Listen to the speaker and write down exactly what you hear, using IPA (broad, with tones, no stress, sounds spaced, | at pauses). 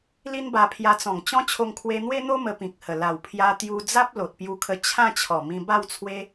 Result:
l i˦ n b a˧ pʰ j a˧ t͡s ɔ̃˨˩ ŋ t͡ɕ ɔ̃˦ t͡ɕʰ o˧ ŋ kʰ w e˧ n̪ w e˦ n̪ o˦ m ə˧ p ĩ˨ k̚ h ə˨˩ l a˨˩ w pʰ j a˧ t̪ j u˧ d͡z a˦ p̚ l o˨ t̚ p j u˧ kʰ ə˧ t͡ɕʰ ã˥˧ t͡ɕʰ ɔ˨˩ m ĩ˧ b a˥˧ w t͡sʰ w e˦